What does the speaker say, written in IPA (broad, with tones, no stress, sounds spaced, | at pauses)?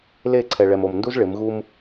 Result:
l e˦˨ ǀʰ ɛ˨ ɭ ɛ˨ m o˨ m n d u˦ z ɭ ɪ˨˦ m ɣ u˦ m